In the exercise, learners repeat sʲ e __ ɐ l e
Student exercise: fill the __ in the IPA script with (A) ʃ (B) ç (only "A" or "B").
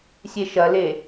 A